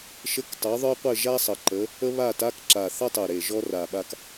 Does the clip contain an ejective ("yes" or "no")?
no